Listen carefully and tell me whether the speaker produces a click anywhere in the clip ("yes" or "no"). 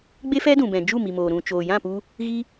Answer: no